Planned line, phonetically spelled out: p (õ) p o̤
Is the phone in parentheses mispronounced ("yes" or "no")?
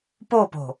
yes